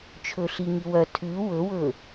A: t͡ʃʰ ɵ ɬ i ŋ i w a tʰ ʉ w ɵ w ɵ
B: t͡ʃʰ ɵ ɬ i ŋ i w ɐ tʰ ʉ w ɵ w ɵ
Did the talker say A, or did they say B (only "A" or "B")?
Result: B